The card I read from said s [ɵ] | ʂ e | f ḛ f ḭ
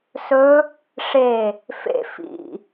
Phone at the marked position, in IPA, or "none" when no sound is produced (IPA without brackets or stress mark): ɵ